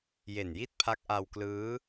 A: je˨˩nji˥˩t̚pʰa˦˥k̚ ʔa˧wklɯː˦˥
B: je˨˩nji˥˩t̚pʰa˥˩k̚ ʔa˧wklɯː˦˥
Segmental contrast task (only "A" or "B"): A